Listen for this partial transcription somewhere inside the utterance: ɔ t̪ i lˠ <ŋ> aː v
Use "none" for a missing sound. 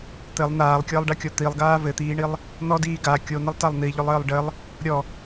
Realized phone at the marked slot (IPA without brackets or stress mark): ɡ